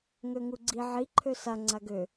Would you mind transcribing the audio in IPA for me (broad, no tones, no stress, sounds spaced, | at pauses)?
ŋ ø ŋ u ɡ͡ǀ i ʕ i ǃʰ ø s a ŋ͡ǀ a ɡ ø